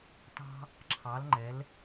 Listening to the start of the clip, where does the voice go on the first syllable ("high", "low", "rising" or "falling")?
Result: high